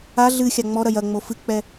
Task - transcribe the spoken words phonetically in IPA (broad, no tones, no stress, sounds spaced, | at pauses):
a ɮ ɨ xʲ a ŋ͡m ɔ ɾ ɐ j ɐ ŋ͡m o f ɨ k͡p ɛ